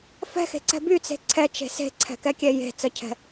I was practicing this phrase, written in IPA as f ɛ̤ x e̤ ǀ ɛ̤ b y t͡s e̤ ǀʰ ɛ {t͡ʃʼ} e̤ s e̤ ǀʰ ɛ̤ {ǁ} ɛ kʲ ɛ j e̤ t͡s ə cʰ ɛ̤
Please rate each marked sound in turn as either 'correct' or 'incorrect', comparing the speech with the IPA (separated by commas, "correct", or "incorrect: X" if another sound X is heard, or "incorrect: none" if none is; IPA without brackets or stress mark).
incorrect: t͡ʃ, incorrect: k